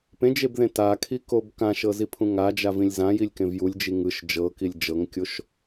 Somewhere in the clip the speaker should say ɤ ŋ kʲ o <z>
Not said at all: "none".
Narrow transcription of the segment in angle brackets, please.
ʃ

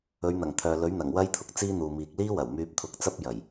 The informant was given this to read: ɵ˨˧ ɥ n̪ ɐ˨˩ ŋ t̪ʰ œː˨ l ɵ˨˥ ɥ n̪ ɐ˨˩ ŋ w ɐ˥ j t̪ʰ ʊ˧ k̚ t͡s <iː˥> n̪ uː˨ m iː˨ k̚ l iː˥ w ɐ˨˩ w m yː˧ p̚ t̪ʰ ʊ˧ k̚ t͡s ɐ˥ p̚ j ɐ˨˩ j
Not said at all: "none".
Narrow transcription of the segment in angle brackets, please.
iː˥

